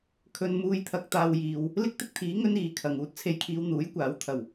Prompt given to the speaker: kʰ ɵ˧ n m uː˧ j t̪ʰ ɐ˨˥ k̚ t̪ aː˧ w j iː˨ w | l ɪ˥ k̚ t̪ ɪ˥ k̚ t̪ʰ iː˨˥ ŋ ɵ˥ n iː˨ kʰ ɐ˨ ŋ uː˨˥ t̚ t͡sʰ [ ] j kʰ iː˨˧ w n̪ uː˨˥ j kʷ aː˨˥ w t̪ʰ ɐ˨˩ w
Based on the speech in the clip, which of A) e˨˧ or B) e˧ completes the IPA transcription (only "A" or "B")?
B